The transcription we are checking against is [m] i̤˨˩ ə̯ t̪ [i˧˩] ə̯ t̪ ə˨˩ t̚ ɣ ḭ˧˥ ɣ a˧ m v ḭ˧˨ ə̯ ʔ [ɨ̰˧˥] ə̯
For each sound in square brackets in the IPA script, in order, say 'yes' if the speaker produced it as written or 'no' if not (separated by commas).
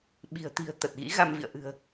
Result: no, no, no